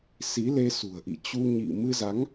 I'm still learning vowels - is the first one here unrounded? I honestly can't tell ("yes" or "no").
yes